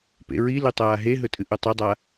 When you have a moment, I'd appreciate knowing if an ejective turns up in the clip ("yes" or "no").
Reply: yes